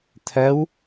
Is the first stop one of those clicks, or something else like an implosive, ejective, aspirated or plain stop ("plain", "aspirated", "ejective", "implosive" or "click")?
aspirated